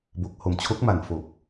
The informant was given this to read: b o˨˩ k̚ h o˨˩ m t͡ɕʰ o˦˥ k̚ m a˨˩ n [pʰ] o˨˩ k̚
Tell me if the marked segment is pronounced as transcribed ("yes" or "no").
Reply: no